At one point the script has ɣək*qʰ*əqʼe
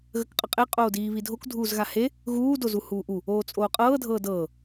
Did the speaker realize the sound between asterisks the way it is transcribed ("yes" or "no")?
no